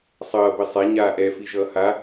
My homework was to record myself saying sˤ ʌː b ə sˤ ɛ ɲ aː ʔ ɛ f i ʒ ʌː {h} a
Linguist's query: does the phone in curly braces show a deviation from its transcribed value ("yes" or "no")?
no